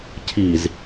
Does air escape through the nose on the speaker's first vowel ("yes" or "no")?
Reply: no